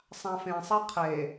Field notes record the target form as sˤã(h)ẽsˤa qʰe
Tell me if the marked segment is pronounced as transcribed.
no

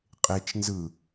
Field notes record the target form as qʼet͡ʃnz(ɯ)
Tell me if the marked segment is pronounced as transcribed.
yes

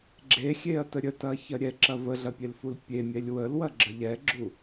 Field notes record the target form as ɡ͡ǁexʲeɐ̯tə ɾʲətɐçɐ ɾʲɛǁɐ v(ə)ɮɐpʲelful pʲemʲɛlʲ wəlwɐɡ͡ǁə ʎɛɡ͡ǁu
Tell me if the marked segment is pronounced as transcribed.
yes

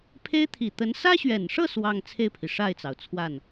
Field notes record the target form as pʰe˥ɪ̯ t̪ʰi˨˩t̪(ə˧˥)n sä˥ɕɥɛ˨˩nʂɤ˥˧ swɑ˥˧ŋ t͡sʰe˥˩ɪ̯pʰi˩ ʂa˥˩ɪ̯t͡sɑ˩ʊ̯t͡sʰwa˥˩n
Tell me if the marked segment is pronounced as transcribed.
yes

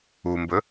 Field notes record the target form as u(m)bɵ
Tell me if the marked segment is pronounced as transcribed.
yes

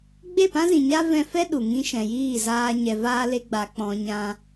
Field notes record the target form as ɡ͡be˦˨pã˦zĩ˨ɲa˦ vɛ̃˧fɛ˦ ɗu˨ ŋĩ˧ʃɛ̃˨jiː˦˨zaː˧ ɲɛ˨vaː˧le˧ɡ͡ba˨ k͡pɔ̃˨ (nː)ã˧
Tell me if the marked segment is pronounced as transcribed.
no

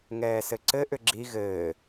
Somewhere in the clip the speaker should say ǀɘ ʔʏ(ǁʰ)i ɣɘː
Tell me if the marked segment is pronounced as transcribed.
no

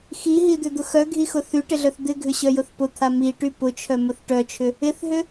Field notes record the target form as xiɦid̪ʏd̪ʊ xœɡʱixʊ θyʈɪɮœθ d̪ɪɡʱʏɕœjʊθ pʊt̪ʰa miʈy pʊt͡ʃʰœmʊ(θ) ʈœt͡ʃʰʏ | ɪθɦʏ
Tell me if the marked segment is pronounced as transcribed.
yes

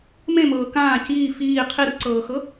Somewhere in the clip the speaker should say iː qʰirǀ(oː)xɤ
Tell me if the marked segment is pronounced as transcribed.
no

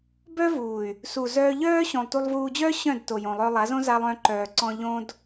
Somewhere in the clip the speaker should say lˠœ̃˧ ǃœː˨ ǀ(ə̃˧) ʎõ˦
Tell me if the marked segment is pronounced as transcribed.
no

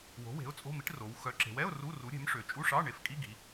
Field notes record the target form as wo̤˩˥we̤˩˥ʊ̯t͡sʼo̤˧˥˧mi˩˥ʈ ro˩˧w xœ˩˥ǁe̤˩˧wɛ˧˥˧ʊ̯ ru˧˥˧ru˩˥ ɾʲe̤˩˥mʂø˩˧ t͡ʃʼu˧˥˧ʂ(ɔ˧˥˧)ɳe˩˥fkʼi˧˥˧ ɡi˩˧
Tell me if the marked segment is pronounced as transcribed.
no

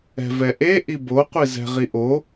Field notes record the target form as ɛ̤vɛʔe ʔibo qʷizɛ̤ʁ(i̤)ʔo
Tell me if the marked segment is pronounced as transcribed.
no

